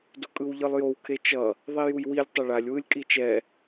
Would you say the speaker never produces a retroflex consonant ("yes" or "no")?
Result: no